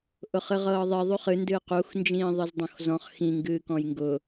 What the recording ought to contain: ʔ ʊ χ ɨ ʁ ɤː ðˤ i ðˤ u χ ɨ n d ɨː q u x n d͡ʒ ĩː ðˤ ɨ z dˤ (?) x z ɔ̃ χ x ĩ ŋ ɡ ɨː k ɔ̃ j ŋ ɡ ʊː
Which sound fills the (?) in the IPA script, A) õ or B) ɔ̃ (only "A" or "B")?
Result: A